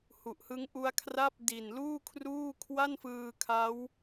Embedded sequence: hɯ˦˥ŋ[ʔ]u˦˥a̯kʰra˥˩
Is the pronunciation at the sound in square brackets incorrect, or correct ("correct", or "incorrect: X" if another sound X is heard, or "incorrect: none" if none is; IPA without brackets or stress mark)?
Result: correct